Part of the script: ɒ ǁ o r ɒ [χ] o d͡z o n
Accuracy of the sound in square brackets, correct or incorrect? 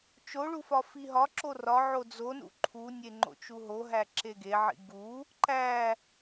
incorrect: ʕ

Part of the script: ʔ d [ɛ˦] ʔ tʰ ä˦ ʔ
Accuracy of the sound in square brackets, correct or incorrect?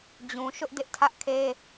incorrect: ɪ˦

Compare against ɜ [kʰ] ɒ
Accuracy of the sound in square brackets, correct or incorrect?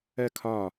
correct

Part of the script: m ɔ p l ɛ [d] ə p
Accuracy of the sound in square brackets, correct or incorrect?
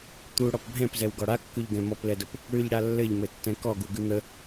correct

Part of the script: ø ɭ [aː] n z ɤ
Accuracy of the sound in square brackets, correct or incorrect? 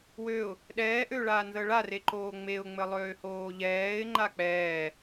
correct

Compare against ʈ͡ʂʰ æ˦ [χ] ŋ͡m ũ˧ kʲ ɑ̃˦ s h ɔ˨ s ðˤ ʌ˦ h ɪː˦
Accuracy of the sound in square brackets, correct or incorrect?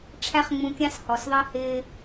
correct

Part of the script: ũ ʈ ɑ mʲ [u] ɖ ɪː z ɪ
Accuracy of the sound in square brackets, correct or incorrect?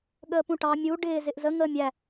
correct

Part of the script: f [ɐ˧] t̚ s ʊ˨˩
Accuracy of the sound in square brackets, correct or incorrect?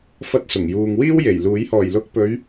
correct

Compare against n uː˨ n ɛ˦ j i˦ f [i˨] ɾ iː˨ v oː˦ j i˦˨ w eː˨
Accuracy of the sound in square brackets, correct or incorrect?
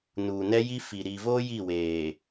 correct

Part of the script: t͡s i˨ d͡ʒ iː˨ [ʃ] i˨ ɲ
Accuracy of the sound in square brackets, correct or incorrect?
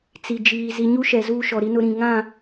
incorrect: z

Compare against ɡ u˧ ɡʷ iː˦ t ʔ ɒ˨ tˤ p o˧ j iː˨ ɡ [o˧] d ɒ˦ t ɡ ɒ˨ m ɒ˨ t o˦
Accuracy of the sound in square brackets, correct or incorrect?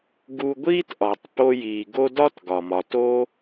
incorrect: o˦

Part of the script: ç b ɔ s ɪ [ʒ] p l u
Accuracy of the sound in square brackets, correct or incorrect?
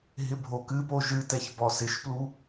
incorrect: ʃ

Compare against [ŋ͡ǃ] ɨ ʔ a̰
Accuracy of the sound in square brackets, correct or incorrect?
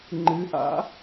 correct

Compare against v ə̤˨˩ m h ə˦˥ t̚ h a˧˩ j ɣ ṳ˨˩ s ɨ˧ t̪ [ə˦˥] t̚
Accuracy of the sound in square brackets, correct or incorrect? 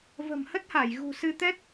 incorrect: ɛ˦˥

